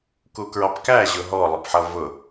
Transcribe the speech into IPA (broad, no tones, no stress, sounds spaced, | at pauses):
k u k ɹ ɑ p k æ ʑ ʊ ɦ ɔ lˠ ɪ p ħ ʌ v ʊ